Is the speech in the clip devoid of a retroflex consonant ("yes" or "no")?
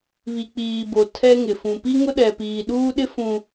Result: yes